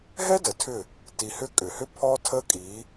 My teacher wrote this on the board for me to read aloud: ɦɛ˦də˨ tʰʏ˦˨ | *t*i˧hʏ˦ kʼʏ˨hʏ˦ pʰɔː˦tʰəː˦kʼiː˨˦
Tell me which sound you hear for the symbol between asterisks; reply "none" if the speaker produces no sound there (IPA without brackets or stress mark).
t